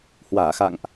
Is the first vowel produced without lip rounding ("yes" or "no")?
yes